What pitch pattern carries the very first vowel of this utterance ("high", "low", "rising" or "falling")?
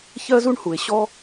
high